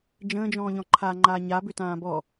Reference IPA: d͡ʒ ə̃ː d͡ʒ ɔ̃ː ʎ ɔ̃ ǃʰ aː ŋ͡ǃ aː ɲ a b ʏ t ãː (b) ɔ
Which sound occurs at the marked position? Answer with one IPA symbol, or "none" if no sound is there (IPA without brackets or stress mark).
b